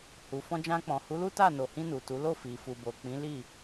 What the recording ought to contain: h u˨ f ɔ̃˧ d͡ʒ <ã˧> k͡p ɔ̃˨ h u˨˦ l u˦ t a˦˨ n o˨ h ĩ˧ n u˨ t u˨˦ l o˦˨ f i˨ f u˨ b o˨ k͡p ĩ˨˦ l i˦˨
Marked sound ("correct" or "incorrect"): correct